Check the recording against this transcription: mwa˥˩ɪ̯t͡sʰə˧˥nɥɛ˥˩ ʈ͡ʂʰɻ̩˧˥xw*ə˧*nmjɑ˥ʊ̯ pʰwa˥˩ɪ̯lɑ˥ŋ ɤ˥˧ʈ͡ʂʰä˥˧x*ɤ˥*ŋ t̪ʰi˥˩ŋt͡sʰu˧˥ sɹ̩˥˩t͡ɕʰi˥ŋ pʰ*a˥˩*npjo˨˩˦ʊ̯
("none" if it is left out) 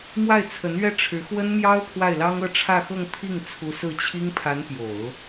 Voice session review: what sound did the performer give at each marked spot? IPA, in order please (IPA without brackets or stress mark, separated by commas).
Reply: ə˥, ɤ˥˧, a˧˥